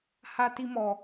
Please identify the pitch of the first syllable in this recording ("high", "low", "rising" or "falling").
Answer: high